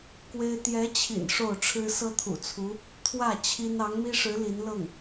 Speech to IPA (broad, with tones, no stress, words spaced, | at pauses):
kwe˥ɪ̯ t̪jɛ˧˥t͡ɕʰḭ˨˩n ʂo˥˩ʊ̯ʈ͡ʂʰɻ̩˥ sɤ˥t̪ʰṵ˨˩t͡sʰu˧˥ | t̪ʰwä˥˩ t͡ɕʰi˥n ɑ˧˥ŋmi˥ʂɻ̩˧˥ li˧˥nlɤ˥˩ŋ